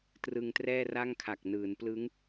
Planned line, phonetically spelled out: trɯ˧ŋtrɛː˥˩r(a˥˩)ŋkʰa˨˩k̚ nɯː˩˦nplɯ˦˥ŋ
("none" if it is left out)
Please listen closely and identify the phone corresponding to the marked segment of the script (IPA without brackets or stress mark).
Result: a˥˩